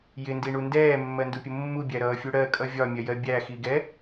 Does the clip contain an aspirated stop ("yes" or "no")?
no